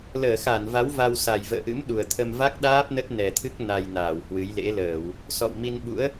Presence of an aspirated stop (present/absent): present